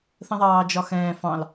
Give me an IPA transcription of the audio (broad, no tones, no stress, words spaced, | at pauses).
θə̃ðˤɑːd͡ʒɒxɛ̃ː fɑ̃l